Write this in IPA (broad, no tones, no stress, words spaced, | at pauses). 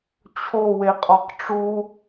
t͡ɕʰo weqʼɒqʈ͡ʂu